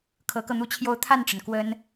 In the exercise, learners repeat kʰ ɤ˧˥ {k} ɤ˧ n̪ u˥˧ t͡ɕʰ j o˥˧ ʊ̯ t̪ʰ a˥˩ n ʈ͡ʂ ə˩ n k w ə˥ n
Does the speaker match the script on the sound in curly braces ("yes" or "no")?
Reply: yes